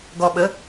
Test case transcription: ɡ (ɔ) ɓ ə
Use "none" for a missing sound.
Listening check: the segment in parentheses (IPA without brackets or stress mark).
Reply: ɔ